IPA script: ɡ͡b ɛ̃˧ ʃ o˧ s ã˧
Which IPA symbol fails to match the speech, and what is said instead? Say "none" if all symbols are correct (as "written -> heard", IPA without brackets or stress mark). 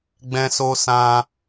ʃ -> s